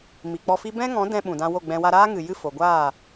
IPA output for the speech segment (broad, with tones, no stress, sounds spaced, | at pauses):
m i˨ k͡p ɔ˧ f i˦ b ɛ̃˦ ŋ ɔ̃˨˦ d ɛ̃˧ ɓ ũ˨ d ã˧ w o˦˨ ɡ͡b ɛ̃˧ w a˧ ɾ aː˦ ŋ ɨ˨ j ɨ˦˨ f o˨ ɡʷ aː˦˨